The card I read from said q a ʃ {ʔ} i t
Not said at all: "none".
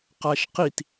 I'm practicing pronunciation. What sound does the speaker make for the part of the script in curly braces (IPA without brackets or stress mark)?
q